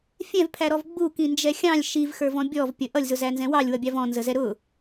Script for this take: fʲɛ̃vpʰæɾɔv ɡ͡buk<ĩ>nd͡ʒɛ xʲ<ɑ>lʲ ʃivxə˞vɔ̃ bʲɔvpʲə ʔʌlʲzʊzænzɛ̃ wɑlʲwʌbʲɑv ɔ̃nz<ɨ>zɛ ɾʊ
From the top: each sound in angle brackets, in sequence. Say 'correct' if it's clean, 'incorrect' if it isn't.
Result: correct, incorrect: ɑ̃, incorrect: ə

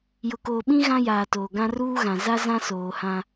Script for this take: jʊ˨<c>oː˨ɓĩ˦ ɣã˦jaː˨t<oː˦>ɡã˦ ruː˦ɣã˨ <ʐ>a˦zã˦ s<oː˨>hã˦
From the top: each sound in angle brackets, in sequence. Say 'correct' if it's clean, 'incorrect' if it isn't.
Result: incorrect: k, incorrect: oː˨, incorrect: z, correct

